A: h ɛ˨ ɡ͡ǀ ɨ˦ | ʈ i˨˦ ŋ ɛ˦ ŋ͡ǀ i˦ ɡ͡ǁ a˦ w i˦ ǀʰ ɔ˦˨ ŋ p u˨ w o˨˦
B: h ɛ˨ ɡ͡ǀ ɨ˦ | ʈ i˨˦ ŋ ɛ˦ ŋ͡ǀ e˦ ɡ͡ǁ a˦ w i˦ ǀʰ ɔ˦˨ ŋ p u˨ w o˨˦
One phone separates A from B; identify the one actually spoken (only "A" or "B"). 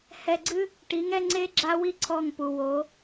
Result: B